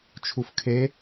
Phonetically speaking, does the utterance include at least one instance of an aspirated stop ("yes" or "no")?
yes